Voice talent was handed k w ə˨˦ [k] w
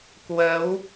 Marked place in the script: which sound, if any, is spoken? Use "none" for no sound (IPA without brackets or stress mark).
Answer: none